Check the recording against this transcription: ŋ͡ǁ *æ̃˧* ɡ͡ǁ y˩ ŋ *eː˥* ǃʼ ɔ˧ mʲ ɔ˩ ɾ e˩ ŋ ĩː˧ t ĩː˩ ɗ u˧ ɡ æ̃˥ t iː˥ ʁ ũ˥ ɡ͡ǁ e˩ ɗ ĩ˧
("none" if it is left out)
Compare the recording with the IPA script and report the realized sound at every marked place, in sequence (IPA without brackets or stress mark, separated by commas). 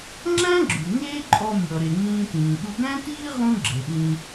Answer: æ̃˥, eː˥